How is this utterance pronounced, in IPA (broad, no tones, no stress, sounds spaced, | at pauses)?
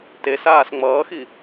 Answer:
t e s aː s ŋ͡m ʌː x i